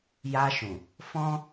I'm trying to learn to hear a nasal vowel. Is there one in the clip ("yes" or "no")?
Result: yes